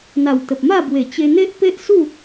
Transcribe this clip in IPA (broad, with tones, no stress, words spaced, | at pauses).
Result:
n̪a˨˩wt̪ə˨p̚ma˥˧bwe˨˩ t͡ɕe˧n̪e˦ʔpe˦ʔsu˥˧